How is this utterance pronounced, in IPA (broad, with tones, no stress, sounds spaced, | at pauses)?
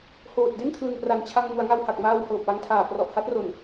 h oː˨˩ t̚ d e˥˩ n kʰ l ɯ˨˩ ŋ p r a˨˩ n t͡ɕʰ a˧ ŋ m u˩˦ a̯ ŋ a˧ w h a˨˩ k̚ m aː˧ w h ɤː˨˩ p̚ w a˦˥ ŋ tʰ aː˨˩ p r ɔ˨˩ ʔ h a˦˥ t̚ r o˨˩ n